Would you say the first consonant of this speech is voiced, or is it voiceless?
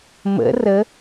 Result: voiced